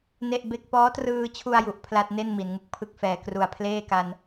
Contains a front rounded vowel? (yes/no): no